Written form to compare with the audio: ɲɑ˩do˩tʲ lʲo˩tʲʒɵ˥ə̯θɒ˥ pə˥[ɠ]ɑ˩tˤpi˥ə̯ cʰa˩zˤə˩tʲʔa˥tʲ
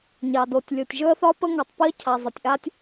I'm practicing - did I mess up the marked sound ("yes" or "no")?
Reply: yes